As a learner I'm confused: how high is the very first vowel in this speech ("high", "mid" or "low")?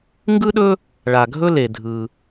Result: high